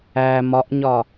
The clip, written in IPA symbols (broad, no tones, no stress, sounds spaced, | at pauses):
æ m ɒ ʔ ɲ ɒ